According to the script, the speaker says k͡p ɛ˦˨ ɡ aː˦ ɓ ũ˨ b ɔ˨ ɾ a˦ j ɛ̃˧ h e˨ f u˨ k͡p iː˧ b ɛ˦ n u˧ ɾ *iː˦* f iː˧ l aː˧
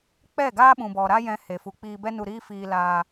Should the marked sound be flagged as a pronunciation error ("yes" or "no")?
no